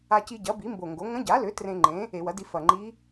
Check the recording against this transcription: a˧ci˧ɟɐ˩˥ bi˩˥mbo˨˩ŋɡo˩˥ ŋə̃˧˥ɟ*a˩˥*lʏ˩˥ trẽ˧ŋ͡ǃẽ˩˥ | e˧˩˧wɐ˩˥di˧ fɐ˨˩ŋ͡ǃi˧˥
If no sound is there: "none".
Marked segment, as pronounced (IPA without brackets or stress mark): a˩˥